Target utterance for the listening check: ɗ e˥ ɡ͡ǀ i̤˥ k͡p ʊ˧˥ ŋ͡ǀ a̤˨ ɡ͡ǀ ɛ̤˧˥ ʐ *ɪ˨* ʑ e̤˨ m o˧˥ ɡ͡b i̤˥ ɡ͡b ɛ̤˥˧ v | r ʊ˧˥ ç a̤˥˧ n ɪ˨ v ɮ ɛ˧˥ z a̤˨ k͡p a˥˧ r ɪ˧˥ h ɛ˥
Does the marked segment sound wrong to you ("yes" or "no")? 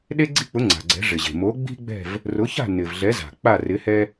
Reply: no